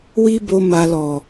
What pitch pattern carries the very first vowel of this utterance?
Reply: high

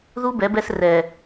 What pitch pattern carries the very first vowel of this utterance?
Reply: high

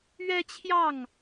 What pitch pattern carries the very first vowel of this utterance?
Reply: high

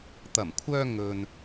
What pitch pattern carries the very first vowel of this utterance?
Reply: low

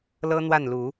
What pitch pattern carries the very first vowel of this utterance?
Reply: high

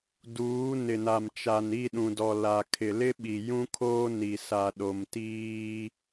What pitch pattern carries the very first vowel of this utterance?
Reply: rising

